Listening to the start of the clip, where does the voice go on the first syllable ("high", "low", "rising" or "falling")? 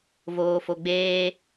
low